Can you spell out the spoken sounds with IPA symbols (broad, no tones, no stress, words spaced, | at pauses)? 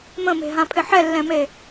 mə̃me̤ɦãpʰɪ ħɛlːɛ̃me